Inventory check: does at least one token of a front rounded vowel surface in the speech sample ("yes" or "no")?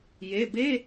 no